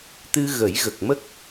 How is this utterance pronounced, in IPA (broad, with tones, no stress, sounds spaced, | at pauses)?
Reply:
t̪ ɨ˧ ɣ ə˨˩˦ j ɣ ə˨˩ k̚ m ə˦˥ k̚